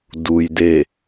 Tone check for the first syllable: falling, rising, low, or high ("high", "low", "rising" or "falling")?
low